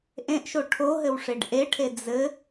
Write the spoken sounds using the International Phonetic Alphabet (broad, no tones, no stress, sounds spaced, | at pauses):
ʔ ẽ ʔ ʃ o ʈʰ o ɦ ɘ w ʂ e ɖ ʔ e ʈʰ e d͡z ɘ